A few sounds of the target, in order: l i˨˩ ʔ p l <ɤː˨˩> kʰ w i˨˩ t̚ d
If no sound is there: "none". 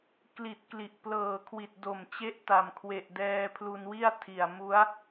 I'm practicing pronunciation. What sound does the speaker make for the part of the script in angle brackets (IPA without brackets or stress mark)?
ɤː˨˩